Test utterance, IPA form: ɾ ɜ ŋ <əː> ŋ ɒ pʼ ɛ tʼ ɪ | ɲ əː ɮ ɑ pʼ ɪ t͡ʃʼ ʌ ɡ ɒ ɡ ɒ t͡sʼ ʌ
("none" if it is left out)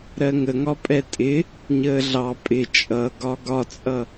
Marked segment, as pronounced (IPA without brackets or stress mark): ə